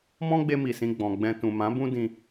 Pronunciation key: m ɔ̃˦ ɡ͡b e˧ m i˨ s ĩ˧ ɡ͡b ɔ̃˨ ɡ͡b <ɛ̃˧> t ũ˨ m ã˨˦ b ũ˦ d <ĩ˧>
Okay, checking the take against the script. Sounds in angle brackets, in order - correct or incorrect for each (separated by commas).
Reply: correct, correct